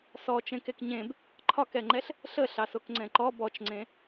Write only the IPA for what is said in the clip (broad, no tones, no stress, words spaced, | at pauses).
sɔ t͡ʃẽkekɲẽb | ǃʰɒkɛŋ͡ǃɛɬ | ɬə ɬɑsokŋ͡ǀɛ̃ǃɔ bɔt͡ʃŋ͡ǀẽ